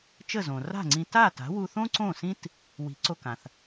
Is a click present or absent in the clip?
present